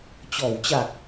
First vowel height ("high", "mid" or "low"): mid